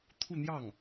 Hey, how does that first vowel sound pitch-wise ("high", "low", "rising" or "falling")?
falling